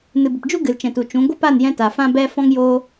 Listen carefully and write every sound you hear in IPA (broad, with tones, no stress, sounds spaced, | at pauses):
n ɨ˨ b ə˨ p d͡ʒ u˦ ɡ ɨ˨ l t͡ʃ ɛ̃˨ t u˨ t͡ʃ ũ˨˦ ɡʷ ə˦ p a˦˨ n j ɛ̃˦ t a˨ f ã˦ b ɛ˦ f ɔ̃˦ ŋ j oː˦